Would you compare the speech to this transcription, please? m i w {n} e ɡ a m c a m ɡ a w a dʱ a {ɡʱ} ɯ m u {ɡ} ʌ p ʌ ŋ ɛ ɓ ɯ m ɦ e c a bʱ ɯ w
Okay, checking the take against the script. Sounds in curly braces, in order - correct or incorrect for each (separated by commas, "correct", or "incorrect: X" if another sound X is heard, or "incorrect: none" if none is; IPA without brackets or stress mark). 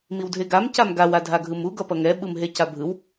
incorrect: dʱ, correct, correct